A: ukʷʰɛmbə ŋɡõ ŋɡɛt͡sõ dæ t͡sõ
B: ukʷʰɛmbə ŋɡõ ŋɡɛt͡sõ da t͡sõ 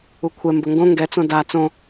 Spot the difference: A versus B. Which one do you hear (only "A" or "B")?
B